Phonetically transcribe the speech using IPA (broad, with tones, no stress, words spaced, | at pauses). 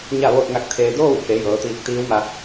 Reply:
ɲa˥˨ʋoː˥˨t̚ŋa˧˥k̚t̪ʰeː˧ doː˥˨wke˩˧ jɤː˩˧t̪iː˧k̚t̪iː˧˥wma˧